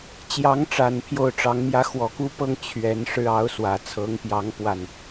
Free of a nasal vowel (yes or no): yes